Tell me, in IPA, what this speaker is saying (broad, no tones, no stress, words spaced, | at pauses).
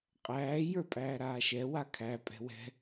qʼæː jə˞pʼæːɾaːʃɛ wakʰæ pʼɛ̤wɛ̤